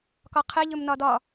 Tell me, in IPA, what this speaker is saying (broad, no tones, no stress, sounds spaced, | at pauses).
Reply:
k ɒ qʰ ɛ ʎ ɵ m n ɒ d ɒ